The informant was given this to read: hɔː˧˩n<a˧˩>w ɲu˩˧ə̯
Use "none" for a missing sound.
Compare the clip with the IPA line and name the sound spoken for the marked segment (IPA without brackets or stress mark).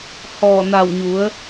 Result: a˧˩